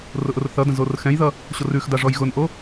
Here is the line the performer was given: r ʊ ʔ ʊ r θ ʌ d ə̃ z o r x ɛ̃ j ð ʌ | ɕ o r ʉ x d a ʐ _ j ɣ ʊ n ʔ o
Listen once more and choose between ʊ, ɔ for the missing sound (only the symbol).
ɔ